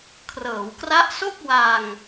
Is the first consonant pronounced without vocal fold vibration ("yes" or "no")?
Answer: yes